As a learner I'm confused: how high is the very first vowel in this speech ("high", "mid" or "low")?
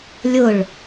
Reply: high